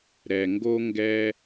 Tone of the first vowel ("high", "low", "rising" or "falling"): low